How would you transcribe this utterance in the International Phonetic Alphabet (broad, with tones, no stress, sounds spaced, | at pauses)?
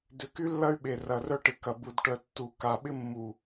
d ʏ˨˦ k y˦ lː ɐ˦ y̯ ɓ e˨ r ɐ˨ r œ˦ ʈ ɪ˨ k ɐ˨ b u˨ d ʈ œ˨ tː u˨ k a˨ ɓ ɪ˦ mː u˨